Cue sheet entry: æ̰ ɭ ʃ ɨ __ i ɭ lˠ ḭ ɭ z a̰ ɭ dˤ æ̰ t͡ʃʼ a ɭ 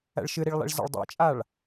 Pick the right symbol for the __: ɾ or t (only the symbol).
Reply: ɾ